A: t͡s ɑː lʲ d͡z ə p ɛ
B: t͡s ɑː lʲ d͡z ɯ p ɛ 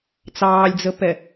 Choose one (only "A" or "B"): A